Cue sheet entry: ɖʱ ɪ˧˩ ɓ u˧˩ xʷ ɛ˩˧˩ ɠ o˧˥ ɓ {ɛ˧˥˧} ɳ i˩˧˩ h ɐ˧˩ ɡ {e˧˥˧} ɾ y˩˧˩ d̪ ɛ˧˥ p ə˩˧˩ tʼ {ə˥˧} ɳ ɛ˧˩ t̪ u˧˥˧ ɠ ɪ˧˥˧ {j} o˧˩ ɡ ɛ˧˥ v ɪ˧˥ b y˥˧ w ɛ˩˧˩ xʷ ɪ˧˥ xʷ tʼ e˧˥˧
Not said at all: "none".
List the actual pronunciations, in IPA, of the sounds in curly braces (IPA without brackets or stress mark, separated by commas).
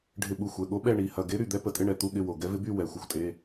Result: ɛ˥˧, e˧˥, ɪ˥˧, w